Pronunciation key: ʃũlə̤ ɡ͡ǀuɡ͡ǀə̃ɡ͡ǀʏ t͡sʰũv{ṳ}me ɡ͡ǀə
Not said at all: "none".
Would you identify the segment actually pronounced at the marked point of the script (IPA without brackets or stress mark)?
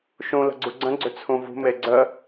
ṳ